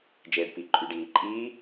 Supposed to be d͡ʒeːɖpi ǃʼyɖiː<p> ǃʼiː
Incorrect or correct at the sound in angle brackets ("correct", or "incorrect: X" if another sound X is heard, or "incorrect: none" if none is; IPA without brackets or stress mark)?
incorrect: none